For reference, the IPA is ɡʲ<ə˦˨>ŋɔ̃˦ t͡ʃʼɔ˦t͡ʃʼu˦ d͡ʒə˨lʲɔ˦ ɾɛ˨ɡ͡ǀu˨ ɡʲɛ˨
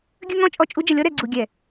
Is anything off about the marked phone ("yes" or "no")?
yes